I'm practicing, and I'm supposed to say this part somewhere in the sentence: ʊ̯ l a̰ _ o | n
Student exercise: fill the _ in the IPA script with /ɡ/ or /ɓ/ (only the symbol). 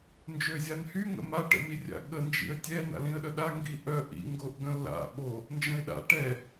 ɓ